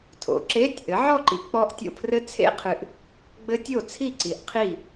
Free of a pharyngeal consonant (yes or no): no